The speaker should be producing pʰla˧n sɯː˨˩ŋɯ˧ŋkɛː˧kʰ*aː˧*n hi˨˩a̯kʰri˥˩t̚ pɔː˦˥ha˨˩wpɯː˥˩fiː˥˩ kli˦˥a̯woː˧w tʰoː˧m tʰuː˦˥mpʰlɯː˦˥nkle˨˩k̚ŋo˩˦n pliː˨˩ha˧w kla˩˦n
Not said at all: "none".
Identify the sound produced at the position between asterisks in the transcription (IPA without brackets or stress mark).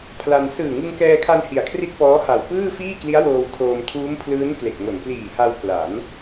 a˧